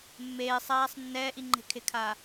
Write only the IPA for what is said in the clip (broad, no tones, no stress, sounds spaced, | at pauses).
mː eː sˤ aː sˤ nː ɛː ʔ i ŋ͡ǃ e̤ kʰ ɪ kʰ aː